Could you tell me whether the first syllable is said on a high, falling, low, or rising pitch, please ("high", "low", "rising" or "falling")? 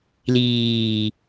low